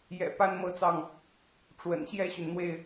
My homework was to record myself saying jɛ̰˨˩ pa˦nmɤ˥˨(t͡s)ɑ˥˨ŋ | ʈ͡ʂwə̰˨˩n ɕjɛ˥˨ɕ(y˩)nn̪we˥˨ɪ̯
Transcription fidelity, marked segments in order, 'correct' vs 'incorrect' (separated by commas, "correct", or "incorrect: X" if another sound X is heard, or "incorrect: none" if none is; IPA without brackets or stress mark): correct, correct